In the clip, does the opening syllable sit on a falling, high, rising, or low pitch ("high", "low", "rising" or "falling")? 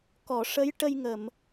low